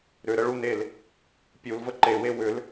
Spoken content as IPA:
ɾ ʏ ɾ ə ɭ u n e l | pʲ u l v ə ǃ e w e w ʏ l

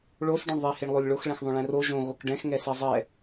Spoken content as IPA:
ɭ o s ɖ õ ɳ ðˤ e h e ɳ lˠ o lʲ ɭ o x ɭ ɛ̃ x ðˤ õ ɭ ɛ̃ r o ʒ õ ɣ o k ɖ ɛ̃ x ŋ ɛ s e zˤ ɛ

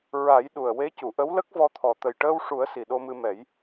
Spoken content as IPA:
ɹ a˨˩˦ j ɗ u˨˩ ə̯ w e˧˥ c u˨˩˨ ʔ ə˧˥ w l ə˦˥ k̚ v ɔ˧ t̪ʰ ɔ˨˩ t̪ ə˨˩ j ʈ əː˧ w ʂ u˨˩˦ ə̯ s i˨˩ ɗ o˧ m ɨ˧ m ɛ˨˩˦ j

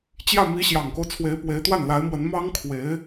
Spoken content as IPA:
t͡ɕ j ä˥˩ m i˧˥ ɕ j ɑ˨˩ ŋ k o˦ ʊ̯ t͡sʰ w e˧˥ ɪ̯ p w e˧˥ ɪ̯ t̪ w a˥˩ n l a˧˥ ɪ̯ m w ə˧˥ n m ɑ˥ ŋ kʰ w e˧˥ ɪ̯

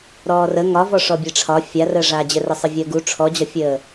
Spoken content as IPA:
ɾ ɔː r ə ŋ ɒ v ɔ ʂ ɔ bʲ e ʈ͡ʂʰ ɒ fʲ a r əː ʐ aː d͡ʑ ɘ r ə sˤ ɘ vʲ əː ɡ u ʈ͡ʂʰ ɔ d͡ʑ ɒ fʲ əː

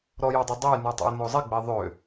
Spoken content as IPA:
ɾ ɔ j ɔ dˤ œ dˤ e j n u tˤ a̰ j n o zˤ i ɡ͡b e ðˤ ø

